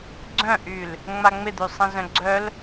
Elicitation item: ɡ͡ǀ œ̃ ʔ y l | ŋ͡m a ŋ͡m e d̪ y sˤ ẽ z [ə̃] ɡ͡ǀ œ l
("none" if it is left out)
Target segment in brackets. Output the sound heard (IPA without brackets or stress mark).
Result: œ̃